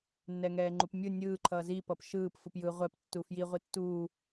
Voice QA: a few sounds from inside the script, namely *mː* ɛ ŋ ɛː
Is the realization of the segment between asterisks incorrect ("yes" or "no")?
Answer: yes